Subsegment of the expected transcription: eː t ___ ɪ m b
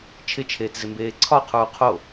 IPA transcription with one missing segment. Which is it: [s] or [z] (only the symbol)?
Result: z